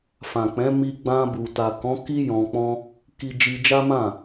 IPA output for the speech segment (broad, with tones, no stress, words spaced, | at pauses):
fã˨k͡pɛ̃˨˦ mi˧ɡ͡bã˧ bu˨ta˨kɔ̃˨˦ ki˦ jɔ̃˧k͡pɔ̃˦ | ki˧ d͡ʒi˧d͡ʒa˦mã˦˨